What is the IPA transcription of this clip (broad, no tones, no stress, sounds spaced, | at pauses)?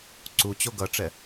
ǀ u t͡ɕ o ɡ ʌ ʈ͡ʂ ɛ